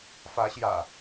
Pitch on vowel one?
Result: rising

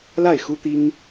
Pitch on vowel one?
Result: falling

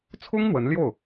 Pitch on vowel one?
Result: high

